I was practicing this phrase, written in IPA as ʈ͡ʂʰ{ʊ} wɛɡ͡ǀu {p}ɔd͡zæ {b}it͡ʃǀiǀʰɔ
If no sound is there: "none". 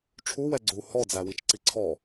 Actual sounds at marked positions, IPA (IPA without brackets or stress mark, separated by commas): u, h, w